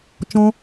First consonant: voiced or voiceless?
voiceless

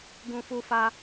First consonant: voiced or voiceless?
voiced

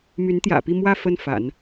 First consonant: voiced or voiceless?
voiced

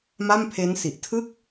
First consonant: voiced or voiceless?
voiced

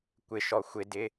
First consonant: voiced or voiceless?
voiceless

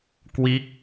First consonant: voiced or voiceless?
voiceless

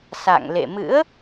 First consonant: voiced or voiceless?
voiceless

